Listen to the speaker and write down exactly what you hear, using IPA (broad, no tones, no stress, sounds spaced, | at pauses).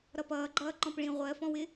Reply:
ɾ ʌ p ʌː ɡ͡ǃ ʌː ǃ ɔ̃ p ɭ ĩ ʁʷ ɜ f ɔ̃ w ɪ